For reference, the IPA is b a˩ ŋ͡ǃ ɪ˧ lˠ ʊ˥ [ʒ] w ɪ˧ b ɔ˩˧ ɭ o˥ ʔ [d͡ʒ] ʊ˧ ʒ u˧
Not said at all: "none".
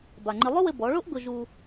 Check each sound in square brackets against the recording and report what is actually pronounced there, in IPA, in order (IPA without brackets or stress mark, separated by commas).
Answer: none, ɡ